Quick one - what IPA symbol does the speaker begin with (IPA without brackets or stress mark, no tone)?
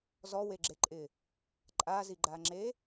z